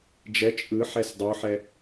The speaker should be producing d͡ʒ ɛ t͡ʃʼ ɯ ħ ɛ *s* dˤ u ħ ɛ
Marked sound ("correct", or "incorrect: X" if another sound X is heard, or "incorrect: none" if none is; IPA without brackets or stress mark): correct